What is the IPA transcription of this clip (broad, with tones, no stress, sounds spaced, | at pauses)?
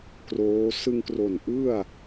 k r oː˦˥ s ɯ˧ ŋ k r o˨˩ n ʔ ɯ˥˩ a̯